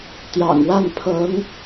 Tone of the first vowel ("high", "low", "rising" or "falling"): low